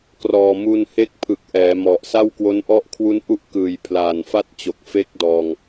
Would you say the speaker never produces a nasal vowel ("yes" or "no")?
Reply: yes